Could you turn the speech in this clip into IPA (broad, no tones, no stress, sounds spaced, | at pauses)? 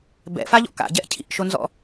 b ɛ̰ f a ʎ ɔ̰ k a̰ ɟ ɛ ʔ cʰ ḭ ʔ ʃ o n z ɔ̰